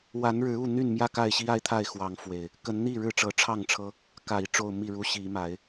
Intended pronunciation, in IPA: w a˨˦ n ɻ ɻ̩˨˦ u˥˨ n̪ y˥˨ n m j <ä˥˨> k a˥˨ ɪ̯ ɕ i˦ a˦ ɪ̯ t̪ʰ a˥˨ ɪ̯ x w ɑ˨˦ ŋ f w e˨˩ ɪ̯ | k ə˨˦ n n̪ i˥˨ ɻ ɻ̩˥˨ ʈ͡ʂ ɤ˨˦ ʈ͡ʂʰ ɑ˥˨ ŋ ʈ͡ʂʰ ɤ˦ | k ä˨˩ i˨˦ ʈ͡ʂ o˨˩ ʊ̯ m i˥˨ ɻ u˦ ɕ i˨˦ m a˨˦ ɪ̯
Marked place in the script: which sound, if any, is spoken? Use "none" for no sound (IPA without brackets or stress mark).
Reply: ä˥˨